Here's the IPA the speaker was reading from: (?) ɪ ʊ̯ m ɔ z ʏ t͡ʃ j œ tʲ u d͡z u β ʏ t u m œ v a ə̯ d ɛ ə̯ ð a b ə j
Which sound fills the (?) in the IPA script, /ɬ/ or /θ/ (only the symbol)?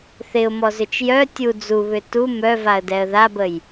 θ